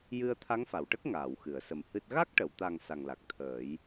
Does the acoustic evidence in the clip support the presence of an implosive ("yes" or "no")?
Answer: no